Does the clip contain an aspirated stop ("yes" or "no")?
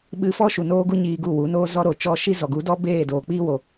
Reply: no